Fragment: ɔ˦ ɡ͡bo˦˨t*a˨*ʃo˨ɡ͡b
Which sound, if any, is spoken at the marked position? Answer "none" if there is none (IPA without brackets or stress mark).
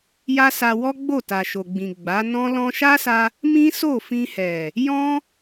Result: a˨